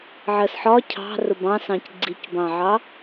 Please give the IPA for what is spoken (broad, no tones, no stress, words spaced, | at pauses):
ʕɜsħɒ cʰɑ̤ rʊbɑ̃sɑ̃c ɡ͡ǀicbɑ̃ʕɑ